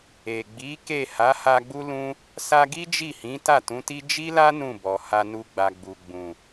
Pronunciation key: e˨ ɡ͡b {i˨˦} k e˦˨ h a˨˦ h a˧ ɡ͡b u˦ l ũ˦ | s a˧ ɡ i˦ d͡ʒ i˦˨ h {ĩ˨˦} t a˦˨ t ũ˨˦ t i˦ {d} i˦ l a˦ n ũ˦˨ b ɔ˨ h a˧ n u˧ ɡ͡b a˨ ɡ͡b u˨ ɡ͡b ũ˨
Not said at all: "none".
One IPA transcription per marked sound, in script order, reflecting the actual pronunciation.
i˨˦, ĩ˨˦, d͡ʒ

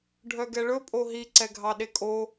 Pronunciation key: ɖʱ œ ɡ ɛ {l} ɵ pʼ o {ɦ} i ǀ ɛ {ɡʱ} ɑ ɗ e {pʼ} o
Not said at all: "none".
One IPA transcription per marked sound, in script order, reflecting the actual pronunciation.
ɭ, ɦ, ɡʱ, kʼ

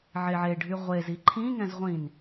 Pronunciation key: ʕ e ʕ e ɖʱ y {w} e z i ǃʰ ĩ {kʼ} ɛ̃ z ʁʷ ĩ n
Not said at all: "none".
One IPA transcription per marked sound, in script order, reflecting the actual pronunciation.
ʁʷ, ŋ

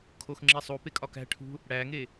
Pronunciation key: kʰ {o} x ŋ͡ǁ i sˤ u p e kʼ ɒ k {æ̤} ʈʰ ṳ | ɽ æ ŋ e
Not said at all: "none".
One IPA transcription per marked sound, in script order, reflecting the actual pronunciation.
o, æ̤

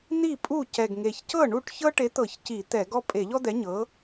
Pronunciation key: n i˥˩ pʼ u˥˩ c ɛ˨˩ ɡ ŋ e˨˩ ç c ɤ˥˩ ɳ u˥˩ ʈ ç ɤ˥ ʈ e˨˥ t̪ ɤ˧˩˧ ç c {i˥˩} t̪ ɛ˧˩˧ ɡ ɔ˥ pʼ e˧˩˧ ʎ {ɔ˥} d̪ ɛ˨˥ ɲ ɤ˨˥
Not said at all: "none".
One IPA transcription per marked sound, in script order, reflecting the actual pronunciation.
i˧˩˧, ɔ˥

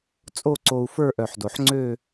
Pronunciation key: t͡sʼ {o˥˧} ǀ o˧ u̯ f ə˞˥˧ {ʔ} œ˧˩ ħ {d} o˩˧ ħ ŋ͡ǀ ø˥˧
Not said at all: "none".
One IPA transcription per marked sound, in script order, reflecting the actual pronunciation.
o˥˧, ʔ, d

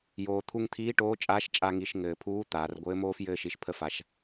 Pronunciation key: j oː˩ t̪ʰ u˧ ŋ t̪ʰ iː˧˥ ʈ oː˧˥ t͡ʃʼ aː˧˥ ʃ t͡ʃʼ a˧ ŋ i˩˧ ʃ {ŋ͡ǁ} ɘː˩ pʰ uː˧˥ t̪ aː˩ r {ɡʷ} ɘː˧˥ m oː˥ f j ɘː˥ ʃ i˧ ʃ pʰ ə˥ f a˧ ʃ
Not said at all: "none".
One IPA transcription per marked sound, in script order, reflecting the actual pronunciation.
ŋ, ɡʷ

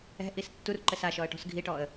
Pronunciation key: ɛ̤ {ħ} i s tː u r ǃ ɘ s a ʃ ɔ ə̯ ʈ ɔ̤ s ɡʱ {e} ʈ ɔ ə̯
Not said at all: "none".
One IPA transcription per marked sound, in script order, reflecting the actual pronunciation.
ʔ, i

